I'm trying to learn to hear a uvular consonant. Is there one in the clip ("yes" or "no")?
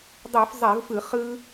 yes